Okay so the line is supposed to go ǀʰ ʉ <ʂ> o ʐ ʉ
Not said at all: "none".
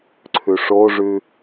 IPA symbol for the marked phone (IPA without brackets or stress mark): ʂ